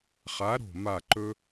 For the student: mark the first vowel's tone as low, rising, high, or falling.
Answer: rising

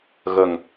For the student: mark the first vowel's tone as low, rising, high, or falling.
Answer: low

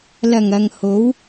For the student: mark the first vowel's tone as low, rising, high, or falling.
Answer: low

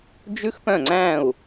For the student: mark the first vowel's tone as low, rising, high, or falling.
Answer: high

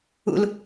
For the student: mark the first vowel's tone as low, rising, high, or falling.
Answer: high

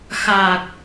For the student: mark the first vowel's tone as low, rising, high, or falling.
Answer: low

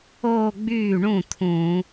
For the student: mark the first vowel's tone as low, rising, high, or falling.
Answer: falling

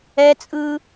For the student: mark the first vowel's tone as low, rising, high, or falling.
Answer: high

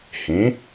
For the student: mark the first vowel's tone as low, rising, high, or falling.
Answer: rising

